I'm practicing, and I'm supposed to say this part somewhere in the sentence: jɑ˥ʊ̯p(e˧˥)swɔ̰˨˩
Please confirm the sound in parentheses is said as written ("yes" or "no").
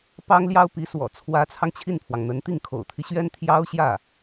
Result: no